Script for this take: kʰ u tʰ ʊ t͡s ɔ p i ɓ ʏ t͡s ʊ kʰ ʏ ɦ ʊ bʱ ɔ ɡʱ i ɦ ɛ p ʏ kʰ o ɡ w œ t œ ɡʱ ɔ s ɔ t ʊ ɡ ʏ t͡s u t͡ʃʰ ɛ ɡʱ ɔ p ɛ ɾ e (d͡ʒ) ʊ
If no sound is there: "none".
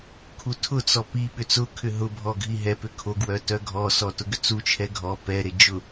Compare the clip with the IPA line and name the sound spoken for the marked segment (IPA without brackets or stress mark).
d͡ʒ